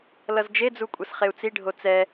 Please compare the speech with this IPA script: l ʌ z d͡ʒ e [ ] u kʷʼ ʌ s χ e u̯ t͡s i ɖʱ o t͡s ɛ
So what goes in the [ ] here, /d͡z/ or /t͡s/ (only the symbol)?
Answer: d͡z